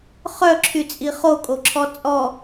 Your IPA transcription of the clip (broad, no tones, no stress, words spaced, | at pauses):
χœǁʰyt͡sʼi χokʼoǁʰɔ t͡sʼɔ